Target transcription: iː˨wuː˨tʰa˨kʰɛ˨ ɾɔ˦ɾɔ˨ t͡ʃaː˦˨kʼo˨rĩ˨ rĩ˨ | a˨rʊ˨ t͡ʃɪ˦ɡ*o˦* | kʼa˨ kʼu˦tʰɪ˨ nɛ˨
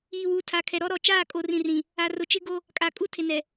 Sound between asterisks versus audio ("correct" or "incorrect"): correct